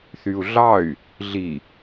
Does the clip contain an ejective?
no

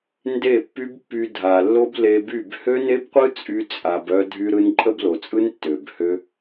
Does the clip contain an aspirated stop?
no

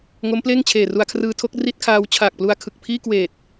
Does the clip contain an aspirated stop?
yes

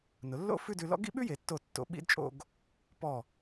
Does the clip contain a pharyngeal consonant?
no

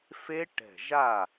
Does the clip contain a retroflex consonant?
yes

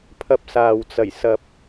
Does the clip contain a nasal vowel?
no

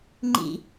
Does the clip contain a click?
yes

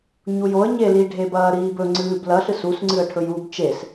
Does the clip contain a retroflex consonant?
yes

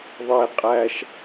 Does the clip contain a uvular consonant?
yes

